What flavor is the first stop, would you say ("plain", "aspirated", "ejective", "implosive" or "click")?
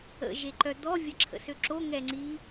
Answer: click